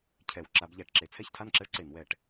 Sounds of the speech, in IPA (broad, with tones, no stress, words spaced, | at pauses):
cʰɛ˧˩˧w ǁa˩˥bʎæ˧˩˧ʈǁe˩˥ t͡sʰɛ˥˩çtʰa˥˩nǁɛ˦ɭǀe˧˩˧n wɛ˧˩˧ʈ